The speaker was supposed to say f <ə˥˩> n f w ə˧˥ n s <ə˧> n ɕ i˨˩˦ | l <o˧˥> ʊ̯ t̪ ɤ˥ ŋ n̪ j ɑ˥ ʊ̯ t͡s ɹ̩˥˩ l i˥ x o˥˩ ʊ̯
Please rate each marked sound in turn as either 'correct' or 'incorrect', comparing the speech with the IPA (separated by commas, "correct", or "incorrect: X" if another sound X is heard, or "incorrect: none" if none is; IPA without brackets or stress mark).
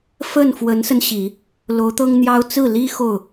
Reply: correct, correct, correct